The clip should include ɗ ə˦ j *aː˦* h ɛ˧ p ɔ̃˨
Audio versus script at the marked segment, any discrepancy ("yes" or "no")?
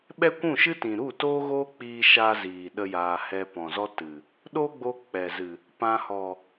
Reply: yes